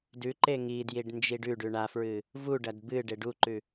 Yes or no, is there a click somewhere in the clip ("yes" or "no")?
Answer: yes